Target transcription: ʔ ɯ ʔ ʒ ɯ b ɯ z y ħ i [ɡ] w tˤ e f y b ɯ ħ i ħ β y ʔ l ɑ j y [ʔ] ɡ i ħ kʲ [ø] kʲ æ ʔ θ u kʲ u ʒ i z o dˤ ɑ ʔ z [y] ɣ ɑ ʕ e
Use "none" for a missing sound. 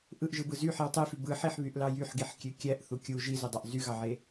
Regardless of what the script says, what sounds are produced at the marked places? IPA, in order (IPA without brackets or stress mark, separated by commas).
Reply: none, ħ, ø, y